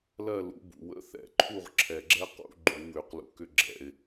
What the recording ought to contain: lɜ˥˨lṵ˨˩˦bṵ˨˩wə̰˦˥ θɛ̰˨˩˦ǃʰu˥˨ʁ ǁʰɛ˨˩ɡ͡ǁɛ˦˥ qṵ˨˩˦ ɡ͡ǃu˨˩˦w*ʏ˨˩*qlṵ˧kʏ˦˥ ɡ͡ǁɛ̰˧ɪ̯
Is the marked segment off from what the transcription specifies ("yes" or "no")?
no